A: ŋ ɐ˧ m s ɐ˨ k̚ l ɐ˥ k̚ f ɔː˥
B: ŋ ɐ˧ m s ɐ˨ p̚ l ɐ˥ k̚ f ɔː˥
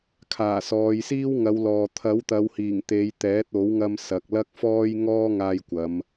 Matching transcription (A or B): A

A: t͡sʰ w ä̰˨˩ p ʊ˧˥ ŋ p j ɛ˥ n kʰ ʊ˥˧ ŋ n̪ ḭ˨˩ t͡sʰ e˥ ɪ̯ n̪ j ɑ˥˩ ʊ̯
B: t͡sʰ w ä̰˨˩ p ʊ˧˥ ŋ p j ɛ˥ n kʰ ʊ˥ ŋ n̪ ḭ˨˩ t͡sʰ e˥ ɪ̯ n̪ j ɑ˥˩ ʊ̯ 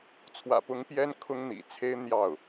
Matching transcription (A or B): B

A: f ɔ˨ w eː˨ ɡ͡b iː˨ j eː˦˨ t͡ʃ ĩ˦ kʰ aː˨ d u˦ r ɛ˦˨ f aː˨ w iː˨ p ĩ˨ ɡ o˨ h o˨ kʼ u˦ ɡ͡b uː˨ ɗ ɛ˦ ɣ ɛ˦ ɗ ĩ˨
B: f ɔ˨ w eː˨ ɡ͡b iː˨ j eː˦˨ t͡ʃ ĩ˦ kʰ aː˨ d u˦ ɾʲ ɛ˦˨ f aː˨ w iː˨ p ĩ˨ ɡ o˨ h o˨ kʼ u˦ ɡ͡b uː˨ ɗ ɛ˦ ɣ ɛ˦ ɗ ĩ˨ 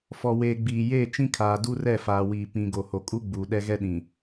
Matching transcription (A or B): A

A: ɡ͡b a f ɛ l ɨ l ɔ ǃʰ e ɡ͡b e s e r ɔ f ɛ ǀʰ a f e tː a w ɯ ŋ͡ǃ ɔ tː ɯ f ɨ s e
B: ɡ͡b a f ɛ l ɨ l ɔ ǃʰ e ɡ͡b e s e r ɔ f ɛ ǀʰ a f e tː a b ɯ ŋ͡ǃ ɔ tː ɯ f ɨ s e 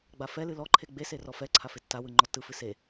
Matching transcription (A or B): A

